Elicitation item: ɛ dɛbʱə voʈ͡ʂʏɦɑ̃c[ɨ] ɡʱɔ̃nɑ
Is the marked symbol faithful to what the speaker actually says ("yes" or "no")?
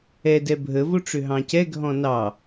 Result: no